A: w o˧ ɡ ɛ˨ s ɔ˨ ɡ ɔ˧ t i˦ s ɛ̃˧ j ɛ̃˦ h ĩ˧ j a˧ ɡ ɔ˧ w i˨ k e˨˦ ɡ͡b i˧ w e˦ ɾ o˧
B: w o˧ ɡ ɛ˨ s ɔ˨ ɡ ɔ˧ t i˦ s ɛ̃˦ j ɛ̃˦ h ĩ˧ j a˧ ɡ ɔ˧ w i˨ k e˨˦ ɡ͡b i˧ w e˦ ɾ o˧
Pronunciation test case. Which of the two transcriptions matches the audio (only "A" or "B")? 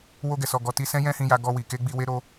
B